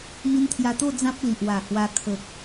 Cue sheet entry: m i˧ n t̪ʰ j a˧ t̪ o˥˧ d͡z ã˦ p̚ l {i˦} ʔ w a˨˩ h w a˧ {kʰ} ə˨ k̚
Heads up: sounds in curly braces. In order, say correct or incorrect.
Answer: incorrect: i˨, correct

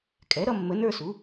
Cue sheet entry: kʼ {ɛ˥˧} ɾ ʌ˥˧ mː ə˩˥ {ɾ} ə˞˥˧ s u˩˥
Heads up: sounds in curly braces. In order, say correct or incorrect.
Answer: incorrect: ɛ˩˥, incorrect: n

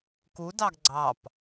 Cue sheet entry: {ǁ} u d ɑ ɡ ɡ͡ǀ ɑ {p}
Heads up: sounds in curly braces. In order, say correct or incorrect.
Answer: incorrect: k, correct

